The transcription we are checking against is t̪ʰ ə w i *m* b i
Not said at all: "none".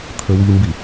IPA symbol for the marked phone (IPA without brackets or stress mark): m